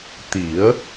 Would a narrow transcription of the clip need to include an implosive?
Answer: no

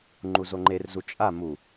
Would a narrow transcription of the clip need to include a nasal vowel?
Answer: no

